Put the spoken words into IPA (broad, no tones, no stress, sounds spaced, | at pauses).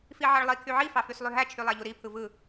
f i ʕ ɑ ɭ lˠ i kʰ y ʕ i f ɑ f y s lˠ y ɦ æ t͡ʃʰ y lˠ æ ʎ u ɾ i pʰ ɯ v ɯ